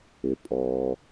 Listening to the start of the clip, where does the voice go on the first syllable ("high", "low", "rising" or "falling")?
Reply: low